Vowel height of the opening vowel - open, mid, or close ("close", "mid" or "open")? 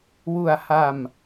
close